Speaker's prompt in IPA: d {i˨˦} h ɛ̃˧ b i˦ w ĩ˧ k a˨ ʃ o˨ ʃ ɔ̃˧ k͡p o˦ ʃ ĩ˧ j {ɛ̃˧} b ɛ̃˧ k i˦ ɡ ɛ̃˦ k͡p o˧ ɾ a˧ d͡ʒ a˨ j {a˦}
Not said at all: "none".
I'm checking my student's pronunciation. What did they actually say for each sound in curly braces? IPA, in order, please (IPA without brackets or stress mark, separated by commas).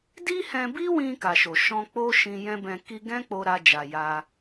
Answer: i˦, ɛ̃˦, a˧